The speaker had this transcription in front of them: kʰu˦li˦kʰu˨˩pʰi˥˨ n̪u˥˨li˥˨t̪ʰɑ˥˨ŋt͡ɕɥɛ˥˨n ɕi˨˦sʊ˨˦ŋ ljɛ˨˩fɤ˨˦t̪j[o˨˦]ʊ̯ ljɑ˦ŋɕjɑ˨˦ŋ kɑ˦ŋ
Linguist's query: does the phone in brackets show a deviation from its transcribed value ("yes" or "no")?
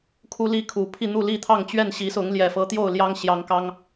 yes